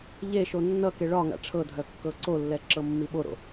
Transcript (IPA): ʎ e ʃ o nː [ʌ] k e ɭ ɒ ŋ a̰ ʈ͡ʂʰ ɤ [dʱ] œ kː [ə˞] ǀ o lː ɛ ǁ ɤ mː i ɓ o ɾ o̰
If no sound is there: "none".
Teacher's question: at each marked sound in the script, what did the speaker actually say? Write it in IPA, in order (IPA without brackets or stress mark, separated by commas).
ʌ, dʱ, ɤ